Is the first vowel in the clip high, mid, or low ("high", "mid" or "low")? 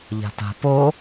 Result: low